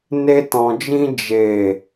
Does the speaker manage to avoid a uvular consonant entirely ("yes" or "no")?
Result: yes